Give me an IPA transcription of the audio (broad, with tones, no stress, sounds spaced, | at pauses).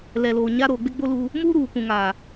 l ɛ˨ l oː˨ ɲ a˦ ɾ oː˨ ɡ͡b ɪ˦ ɡ͡b o˦ l u˦ | m uː˦ ɾ uː˨ kʷ ũ˨ ŋ aː˨